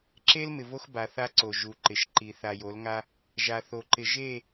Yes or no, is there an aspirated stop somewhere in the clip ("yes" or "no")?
no